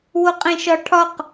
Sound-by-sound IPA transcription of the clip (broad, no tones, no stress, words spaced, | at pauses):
woqʼẽʃɒʈʰɒq